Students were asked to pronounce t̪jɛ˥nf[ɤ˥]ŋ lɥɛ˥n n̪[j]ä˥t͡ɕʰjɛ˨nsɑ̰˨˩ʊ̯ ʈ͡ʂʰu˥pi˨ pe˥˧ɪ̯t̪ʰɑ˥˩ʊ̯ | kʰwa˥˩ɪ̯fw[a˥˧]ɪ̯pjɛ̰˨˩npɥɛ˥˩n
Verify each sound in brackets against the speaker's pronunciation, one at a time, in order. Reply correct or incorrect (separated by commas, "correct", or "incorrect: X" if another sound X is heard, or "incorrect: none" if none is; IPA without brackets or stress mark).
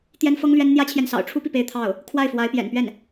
correct, correct, incorrect: a˧˥